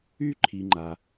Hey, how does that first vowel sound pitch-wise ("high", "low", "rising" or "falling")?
high